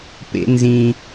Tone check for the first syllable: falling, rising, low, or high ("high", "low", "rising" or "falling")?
high